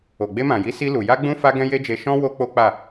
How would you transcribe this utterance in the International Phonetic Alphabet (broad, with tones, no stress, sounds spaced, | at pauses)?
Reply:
o˨ ɡ͡b e˧ m ã˨ j i˨˦ s i˧ l u˨ j a˧ ɡ͡b ũ˧ f a˦ ɡ ɛ̃˦ j e˦ d͡ʒ e˧ ʃ ɔ̃˦ w o˦ k͡p o˦ k͡p a˦˨